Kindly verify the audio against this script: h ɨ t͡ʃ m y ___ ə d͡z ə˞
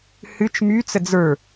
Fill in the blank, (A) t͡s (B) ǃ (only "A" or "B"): A